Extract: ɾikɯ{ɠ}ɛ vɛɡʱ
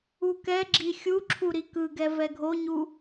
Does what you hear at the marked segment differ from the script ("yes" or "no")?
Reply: yes